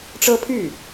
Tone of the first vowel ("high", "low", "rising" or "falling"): high